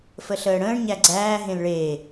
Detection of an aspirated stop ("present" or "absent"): absent